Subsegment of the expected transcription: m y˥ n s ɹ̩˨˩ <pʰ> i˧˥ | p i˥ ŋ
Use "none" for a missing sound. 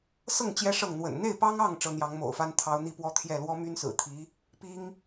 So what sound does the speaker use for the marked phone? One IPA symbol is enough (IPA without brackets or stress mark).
t̪ʰ